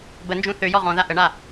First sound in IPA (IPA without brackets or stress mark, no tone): b